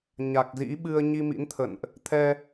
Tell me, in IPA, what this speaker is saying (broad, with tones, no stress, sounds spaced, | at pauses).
ɲ a˨˩ k̚ z ḭ˧˥ ɓ ɨ˧ ə̯ ɲ i˧ m ḭ˧˥ n t̪ʰ ə̰˧˨ n ʔ | t̪ʰ ɛ˧